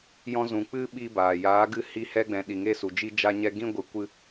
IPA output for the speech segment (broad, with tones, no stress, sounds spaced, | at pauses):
j ɔ̃˧ z ũ˨ k͡p ɨ˦ ɓ i˦ b aː˨ j aː˨˦ ɡ ɨ˧ h i˧ h ɛ˧ ɡ͡b ɛ̃˨ ɗ i˨ ŋ e˦ s u˨ d͡ʒ i˦ d͡ʒ a˧ ɲ ɛ˧ ɡ ĩ˦ ɡʷ ɨ˨ kʷ ɨ˧